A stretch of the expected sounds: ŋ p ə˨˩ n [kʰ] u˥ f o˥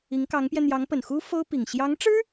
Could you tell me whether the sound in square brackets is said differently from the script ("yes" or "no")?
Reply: yes